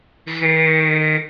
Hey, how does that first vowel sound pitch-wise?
high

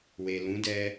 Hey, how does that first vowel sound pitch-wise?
low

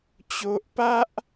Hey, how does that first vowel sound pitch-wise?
high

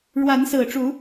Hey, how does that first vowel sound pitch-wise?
rising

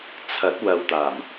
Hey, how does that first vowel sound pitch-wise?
rising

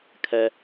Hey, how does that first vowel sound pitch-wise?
high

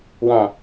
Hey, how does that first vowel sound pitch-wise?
low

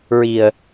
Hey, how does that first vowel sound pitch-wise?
low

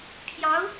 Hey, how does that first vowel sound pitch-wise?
rising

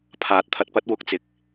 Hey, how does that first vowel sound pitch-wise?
rising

